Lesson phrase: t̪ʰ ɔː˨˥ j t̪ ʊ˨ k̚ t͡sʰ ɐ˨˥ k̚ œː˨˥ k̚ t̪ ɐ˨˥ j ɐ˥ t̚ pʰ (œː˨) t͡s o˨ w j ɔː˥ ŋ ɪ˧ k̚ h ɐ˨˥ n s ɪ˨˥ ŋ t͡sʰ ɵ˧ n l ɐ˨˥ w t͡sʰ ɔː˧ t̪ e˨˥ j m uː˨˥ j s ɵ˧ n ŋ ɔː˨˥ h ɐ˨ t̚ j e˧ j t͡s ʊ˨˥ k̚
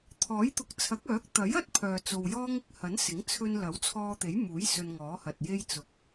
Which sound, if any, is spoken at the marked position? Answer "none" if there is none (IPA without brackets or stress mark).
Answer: œː˨